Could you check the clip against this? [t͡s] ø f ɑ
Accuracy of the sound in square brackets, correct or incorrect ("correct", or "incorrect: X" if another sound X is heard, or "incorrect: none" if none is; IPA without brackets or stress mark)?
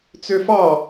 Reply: correct